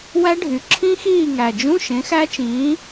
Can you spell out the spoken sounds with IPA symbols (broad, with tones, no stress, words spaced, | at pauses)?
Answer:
wæ˦˥ ɖʱy˩˧ǁʰĩ˦˥ xiː˦˨ŋæ˨˩d͡ʒũ˧˥˧ ʃẽ˨˥xæ˦˥t͡ʃĩː˨˥